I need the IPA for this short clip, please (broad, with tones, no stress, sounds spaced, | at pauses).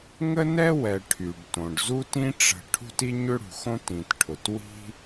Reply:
ŋ ə˥ n ɛ˥ w ɛ˩ ʈʰ y˩ ɖ t õ˩ ɖ z u˥ t ĩ˥ ʈ͡ʂ ə̤˩ ʈʰ ṳ˥ t i˥ ɲ ʏ˥ ɽ ṳ˩ x õ˥ t ĩ˩ t ʈʰ ʊ˩ t w i̤˥